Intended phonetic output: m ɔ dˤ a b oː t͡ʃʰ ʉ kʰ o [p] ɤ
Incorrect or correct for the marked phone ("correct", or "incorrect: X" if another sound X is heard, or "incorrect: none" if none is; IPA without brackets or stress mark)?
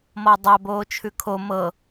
incorrect: m